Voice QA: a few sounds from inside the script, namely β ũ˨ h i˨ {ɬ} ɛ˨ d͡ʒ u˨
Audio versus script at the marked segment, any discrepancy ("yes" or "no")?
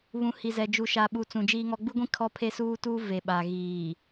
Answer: yes